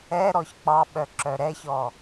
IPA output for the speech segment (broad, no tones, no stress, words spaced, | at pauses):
ɛ ɾɔçk͡pɑɓœ ǁœɾɛçɔ